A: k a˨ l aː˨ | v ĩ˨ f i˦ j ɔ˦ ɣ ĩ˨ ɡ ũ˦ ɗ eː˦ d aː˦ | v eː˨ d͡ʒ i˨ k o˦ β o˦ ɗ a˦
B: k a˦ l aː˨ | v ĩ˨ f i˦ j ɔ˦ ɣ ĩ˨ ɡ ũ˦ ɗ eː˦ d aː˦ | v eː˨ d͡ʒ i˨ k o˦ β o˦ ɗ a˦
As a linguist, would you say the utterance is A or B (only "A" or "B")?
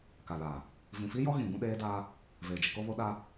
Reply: A